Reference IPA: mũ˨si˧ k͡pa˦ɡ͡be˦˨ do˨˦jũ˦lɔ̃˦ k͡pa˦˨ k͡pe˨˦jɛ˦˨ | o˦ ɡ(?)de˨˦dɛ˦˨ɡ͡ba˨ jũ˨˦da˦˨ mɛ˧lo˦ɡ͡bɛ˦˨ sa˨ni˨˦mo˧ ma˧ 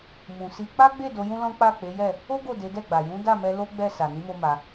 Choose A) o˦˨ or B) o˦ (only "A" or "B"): A